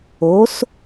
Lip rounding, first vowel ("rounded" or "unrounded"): rounded